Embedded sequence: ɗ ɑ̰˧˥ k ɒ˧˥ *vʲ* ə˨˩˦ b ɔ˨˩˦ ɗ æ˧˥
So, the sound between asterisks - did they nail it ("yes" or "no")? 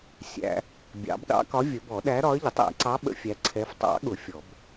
yes